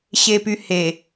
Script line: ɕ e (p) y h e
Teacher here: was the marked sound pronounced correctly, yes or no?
yes